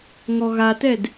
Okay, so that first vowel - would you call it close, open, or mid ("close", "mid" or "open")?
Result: mid